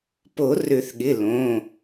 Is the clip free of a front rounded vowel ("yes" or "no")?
no